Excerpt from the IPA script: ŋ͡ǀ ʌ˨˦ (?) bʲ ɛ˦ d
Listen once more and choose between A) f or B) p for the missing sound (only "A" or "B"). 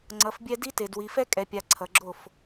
A